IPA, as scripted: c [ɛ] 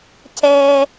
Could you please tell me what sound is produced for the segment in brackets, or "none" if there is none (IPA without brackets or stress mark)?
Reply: ɛ